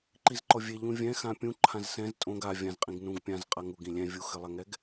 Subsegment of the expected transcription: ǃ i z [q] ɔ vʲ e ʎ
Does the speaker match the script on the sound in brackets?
no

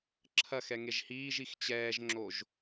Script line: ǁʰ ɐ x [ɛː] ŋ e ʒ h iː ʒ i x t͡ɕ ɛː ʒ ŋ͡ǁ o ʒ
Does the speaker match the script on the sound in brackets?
no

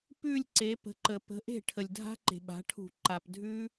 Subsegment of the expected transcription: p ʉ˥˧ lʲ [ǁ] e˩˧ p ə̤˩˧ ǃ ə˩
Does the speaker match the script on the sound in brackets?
no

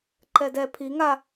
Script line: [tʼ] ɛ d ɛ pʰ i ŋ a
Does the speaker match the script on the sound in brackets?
no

